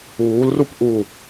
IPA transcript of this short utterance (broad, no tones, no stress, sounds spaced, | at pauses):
uː l r u p ʔ u